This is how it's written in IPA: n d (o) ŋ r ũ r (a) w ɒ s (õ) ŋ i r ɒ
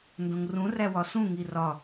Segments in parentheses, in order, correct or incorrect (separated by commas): incorrect, incorrect, incorrect